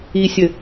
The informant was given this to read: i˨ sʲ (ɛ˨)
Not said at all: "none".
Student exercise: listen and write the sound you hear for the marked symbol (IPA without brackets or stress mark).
ɘ˨